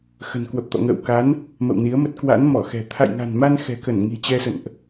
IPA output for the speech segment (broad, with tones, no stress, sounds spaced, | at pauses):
x ə̤˨˩ n k w ə˨˩ p̚ t̪ ɔ̰˧˨ ŋ ə̰ː˧˨ w k a˨˦ n | m ə̰˧˨ w n i˨˦ ə̯ m ə˦˥ t̚ k w a̰˧˥ n m ɔ˧˩ x ɛ̤˨˩ t̪ʰ a̰˧˨ j ŋ a̤˨˩ n m a˧ n x ɛ̤˨˩ k ə˧˩ n ŋ i̤˨˩ t͡ɕ ɛ˧ s ə̰˧˨ n ʔ